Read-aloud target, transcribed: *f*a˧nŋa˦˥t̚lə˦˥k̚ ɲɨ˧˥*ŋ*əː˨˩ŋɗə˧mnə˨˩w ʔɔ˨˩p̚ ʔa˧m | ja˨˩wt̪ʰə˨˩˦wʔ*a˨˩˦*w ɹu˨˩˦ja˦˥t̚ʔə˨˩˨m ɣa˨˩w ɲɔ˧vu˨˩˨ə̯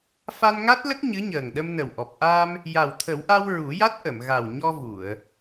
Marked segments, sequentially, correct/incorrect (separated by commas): correct, incorrect, incorrect